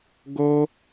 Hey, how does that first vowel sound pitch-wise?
high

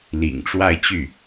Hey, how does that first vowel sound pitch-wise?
low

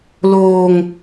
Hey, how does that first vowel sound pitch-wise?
low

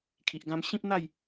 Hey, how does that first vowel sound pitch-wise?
low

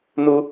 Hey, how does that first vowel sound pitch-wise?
high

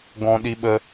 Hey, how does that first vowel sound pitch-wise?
high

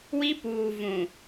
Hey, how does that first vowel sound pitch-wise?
high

